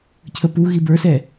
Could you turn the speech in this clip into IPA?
cʰəpu ɣibə˞sɛ

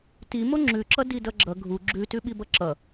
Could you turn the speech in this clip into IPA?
ti moŋ͡ǁʉǁʌ didʌɡ͡ǁʌ ɡʱu ɡ͡ǁʉtʉɓi bʌǁʌ

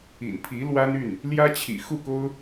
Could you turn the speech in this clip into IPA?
ḭ˨˩npʰi˧˥ lwa˥ny˥˩n | ljä˥t͡ɕʰḭ˨˩xu˥˩ko˥ʊ̯

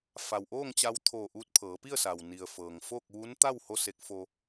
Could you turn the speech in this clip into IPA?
fa˩wʔoː˥˨ŋt͡ɕa˧wt̪ʰoː˧˩ ʔuː˧t̚pʰɤː˩˧pi˥˨ə̯sa˩w ni˩ə̯fɤː˩ŋfoː˥˨k̚ ʋu˧˥n t̪a˥˨w ho˥˨se˧˥k̚fo˧

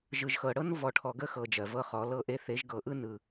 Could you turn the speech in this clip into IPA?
ʒɯ˨ʒxɤ˨ ɽɤ˦n vɔ˨ʈʰɔ˨ɡə˦˨ xɤ˨ d͡ʒɜ˨vɤ˦χɔ˨˦ lɤ˦ʔe˦ θe˨˦ʒɡɤ˨ʔɯ˦ nɯ˨

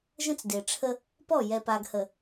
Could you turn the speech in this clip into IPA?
ʒə̃˦t͡sde˨ʈ͡ʂʰə˦ | pɔ˦˨jɛ˨pa˨ɡhə˨

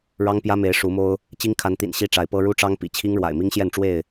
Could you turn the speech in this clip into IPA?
ɻɑ˦ŋpjä˦me˨˦ɪ̯ ʂu˨˦mo˦ʊ̯ | t͡ɕi˦ŋkʰa˨˦nt̪ḭ˨˩n ɕi˦ʈ͡ʂa˨˦ɪ̯pɤ˦ ɻu˦ʈ͡ʂɑ˦ŋpḭ˨˩ t͡ɕʰi˦ŋɻwa̰˨˩ɪ̯ mi˦ŋɕjɛ˥˨nʈ͡ʂwe˥˨ɪ̯

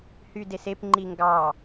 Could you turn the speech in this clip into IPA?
hydesep ŋ͡ǃiŋɡɑ

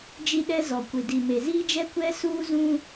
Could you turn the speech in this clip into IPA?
d͡ʒi˦ɗɛ˦ zɔ˨kʷɪ˨ di˨me˨ziː˦d͡ʒɛ˦ kʷɛ˦suː˦ zũ˦

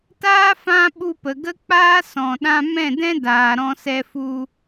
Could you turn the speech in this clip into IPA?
taː˦ fã˦ ɓu˧pə˨ ɡə˦k͡paː˦ sɔ̃˨ ɗã˧mɛ̃˦˨dɛ̃˦daː˨ ɾɔ̃˧sɛ˧fu˧

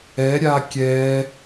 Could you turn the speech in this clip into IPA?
ɛɾʲa kʲɛ

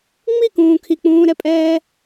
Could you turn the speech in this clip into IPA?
ŋ͡mikũː kʰik͡pũːɾɛpʼɛː

